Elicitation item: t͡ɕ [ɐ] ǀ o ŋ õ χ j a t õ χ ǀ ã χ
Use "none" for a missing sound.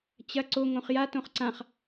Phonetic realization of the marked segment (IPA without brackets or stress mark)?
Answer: ɐ